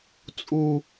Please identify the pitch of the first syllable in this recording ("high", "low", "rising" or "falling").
low